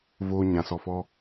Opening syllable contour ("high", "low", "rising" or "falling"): low